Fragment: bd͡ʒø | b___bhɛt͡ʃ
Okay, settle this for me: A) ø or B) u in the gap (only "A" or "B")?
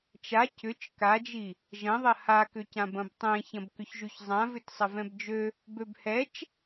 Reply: A